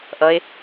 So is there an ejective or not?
no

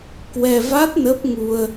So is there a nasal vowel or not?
no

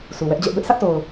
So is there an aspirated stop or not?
no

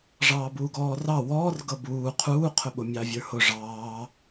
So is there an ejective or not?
no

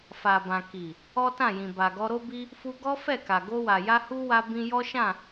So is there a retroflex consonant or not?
no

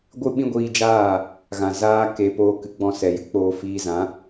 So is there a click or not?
no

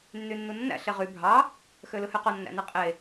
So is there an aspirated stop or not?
no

